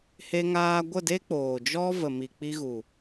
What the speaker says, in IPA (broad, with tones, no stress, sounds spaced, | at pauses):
h e˧ ŋ aː˧ ɡʷ ə˦˨ d e˦ k͡p oː˨ d͡ʒ ɔ˦ v ə˨ m i˨ k͡p i˧ ɣ u˨